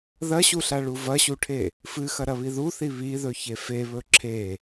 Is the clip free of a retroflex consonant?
no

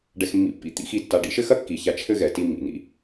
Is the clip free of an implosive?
yes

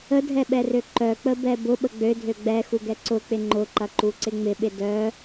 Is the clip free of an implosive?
no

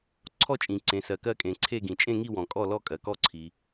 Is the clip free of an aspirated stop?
no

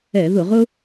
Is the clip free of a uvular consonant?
no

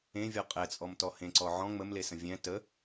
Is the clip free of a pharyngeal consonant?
no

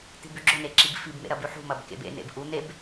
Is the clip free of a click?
no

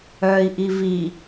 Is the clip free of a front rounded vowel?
no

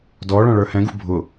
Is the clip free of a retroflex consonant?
no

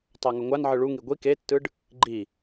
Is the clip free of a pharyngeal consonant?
no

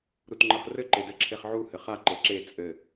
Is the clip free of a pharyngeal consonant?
no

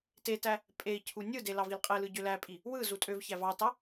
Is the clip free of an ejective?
no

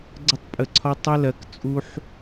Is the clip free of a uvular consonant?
yes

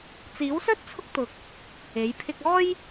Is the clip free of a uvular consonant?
yes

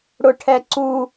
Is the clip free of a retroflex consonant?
no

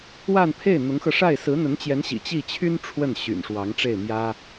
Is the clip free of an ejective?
yes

